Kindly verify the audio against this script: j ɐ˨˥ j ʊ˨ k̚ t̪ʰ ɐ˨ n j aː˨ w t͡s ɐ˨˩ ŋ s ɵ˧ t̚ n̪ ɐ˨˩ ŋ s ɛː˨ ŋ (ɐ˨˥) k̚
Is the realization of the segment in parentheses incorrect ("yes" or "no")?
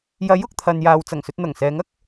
yes